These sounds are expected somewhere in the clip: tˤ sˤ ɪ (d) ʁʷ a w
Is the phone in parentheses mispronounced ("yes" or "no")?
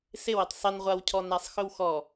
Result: yes